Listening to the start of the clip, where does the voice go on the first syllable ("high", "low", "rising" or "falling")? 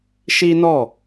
high